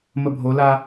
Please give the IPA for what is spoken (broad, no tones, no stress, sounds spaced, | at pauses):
m ə bʱ o l a